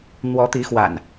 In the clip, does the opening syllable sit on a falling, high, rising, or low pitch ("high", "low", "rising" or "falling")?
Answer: rising